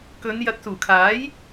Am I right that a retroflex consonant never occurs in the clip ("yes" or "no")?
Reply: yes